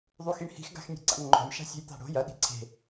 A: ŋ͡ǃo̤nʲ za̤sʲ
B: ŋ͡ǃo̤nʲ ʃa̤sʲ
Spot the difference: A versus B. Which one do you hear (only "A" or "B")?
B